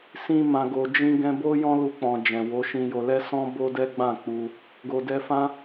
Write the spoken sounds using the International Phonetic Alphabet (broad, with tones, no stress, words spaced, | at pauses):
sĩ˧ mã˨ɡo˨ d͡ʒĩ˧ ɡɛ̃˧bo˦jɔ̃˦ lu˧k͡pɔ̃˨d͡ʒɛ̃˨ wo˨˦ʃĩ˧jo˧ lɛ˦sɔ̃˦ bo˦dɛ˦ɡ͡bã˦˨k͡pu˧ | ɡo˨ dɛ˧fã˦